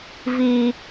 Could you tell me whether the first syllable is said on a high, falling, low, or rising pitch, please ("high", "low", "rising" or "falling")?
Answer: high